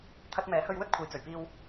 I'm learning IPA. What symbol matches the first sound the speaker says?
t̪ʰ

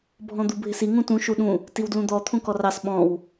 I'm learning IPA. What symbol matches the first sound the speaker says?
bʱ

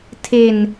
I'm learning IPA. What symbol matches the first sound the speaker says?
tʰ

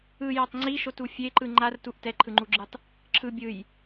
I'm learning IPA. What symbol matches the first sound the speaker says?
ɯ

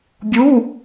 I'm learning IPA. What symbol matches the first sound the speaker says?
bʲ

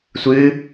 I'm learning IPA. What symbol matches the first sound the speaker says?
sʷ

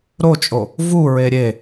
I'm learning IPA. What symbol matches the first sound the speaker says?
ɾ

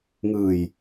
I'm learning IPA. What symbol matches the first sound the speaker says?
ŋ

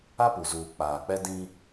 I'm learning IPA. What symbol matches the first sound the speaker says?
a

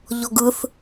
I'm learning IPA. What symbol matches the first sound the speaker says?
ʎ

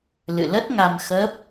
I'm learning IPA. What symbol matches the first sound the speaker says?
l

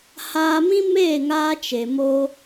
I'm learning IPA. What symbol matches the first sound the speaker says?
h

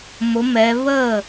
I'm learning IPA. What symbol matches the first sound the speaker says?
m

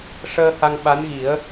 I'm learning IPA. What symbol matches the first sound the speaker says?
ʂ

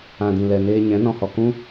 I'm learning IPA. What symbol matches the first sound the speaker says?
ã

